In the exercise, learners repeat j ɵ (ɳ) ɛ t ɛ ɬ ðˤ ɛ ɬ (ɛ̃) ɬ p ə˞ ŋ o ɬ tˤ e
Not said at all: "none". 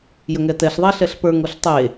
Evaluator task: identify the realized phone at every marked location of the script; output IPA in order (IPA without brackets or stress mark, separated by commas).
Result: ŋ, ɛ